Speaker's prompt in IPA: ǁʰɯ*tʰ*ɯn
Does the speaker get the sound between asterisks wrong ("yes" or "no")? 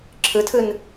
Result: no